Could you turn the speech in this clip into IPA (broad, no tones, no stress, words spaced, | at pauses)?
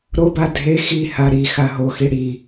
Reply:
ɾoba dʱe xiha ɾixa ɦoxi ɽi